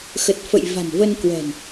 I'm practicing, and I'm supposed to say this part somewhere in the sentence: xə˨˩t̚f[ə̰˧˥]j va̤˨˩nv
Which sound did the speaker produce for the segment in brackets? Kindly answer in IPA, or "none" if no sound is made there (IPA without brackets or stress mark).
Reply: ə̰˧˨